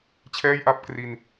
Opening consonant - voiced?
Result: no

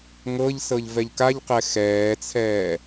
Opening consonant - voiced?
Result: yes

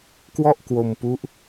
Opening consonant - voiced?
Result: no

